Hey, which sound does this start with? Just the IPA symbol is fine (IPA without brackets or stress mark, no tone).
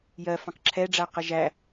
j